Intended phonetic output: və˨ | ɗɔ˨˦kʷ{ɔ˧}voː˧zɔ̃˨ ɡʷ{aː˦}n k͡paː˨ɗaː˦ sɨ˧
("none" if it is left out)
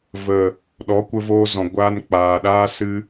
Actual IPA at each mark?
ə˧, aː˧

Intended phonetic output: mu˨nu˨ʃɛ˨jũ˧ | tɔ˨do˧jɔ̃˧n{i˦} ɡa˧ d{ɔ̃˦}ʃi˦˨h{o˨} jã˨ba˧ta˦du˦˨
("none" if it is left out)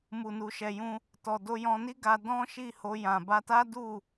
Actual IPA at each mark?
i˦, ɔ̃˦, o˧

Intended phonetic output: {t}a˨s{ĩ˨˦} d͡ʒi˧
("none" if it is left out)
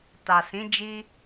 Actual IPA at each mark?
t, ĩ˨˦

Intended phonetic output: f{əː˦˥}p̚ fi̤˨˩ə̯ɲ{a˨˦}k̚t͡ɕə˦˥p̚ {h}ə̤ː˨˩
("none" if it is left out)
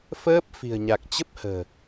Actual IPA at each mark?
əː˦˥, a˨˩, h

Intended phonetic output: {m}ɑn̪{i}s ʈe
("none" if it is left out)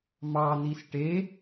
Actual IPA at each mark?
m, i

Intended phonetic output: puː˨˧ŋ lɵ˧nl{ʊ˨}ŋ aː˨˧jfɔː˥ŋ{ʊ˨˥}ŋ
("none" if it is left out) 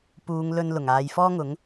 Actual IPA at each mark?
ʊ˨˩, ʊ˨˥

